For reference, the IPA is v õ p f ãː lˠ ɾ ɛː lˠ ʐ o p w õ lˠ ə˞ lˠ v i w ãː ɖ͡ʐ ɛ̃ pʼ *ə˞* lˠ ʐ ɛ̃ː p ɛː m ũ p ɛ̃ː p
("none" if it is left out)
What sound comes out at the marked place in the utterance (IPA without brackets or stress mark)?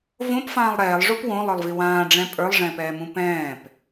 ə˞